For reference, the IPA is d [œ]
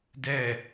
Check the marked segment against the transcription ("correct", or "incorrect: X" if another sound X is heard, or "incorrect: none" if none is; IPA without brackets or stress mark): incorrect: ɛ